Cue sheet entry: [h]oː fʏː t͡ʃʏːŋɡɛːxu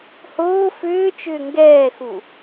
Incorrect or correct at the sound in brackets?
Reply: correct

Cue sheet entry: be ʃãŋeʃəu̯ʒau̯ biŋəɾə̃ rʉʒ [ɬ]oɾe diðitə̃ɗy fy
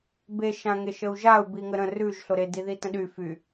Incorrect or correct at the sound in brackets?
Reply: correct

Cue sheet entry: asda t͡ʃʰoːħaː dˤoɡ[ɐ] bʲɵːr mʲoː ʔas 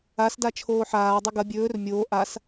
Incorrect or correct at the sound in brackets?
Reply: correct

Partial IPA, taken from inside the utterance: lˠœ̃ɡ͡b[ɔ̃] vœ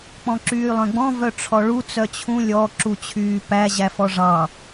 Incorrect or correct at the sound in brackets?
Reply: correct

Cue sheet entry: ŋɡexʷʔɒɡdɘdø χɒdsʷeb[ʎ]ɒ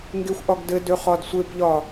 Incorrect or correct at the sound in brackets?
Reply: correct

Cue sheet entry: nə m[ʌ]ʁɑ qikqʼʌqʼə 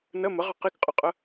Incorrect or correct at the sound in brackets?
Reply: incorrect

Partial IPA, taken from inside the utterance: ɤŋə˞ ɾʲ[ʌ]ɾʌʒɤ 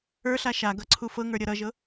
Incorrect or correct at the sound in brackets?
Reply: correct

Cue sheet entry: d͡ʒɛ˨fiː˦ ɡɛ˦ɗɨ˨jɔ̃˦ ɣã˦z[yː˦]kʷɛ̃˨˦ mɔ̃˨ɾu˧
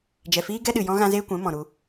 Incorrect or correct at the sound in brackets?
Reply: incorrect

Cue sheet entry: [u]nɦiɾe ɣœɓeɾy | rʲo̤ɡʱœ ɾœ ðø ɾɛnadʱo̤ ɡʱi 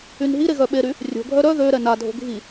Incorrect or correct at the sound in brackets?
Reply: incorrect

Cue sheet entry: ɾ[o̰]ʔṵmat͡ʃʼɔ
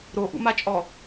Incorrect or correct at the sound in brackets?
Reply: incorrect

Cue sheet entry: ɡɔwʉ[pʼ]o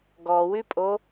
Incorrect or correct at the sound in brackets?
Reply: correct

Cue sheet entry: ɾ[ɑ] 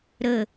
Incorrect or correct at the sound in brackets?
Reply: incorrect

